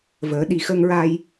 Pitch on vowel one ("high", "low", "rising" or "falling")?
rising